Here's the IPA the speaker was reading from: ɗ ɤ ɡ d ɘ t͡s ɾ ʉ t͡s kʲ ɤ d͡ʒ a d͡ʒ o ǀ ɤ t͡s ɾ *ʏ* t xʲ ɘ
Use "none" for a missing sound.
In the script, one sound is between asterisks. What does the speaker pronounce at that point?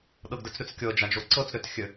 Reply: ʏ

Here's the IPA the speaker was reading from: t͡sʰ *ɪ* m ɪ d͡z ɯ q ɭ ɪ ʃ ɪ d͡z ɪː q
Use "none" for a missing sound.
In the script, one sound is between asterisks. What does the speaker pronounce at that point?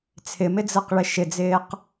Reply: ɪ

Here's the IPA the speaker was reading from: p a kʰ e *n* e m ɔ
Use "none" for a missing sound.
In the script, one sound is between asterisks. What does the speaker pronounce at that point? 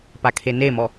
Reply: n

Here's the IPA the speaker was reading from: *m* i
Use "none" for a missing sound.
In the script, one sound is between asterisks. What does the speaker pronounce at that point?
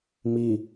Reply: m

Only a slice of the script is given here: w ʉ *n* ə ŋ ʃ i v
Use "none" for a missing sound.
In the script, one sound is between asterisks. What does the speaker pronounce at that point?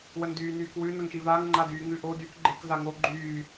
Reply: n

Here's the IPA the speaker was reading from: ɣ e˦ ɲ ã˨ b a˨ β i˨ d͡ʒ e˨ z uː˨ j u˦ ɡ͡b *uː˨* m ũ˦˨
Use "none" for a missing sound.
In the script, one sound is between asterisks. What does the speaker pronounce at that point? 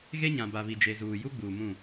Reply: uː˨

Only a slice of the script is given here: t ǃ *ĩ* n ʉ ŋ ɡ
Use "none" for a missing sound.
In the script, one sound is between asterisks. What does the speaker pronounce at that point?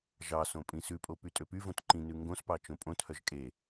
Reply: ĩ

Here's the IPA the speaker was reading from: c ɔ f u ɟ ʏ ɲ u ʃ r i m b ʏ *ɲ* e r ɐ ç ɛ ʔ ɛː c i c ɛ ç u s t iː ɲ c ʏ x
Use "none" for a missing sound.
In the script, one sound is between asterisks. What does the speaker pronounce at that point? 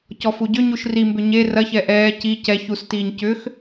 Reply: ɲ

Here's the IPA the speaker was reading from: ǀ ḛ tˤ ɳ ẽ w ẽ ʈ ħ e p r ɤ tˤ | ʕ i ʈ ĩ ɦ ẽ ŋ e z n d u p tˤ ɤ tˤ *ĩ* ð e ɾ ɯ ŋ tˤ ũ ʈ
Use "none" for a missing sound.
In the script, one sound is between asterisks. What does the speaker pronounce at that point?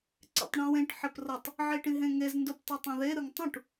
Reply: ẽ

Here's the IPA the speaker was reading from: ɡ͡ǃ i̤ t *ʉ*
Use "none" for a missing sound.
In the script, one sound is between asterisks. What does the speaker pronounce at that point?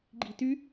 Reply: ʉ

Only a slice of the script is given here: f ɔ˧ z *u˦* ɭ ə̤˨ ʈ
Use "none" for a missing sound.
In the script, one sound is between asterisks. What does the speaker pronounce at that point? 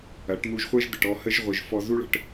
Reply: u˦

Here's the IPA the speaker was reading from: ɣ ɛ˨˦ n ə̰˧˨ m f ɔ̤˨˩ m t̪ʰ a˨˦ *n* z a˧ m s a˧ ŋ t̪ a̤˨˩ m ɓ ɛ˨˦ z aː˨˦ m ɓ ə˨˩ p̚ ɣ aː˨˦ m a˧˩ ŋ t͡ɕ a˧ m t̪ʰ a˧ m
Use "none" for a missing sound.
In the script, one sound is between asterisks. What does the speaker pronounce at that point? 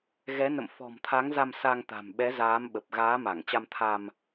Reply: ŋ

